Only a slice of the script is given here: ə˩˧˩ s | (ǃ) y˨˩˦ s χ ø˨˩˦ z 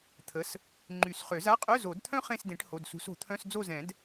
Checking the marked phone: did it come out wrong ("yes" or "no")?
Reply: yes